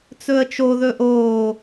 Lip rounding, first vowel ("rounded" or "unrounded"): rounded